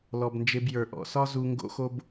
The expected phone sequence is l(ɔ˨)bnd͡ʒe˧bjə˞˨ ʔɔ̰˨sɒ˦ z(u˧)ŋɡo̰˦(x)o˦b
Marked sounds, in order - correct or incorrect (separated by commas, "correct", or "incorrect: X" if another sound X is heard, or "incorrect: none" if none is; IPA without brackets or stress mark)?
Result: correct, correct, correct